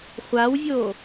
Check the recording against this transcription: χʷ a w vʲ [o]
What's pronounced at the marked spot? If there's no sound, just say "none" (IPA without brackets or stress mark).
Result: o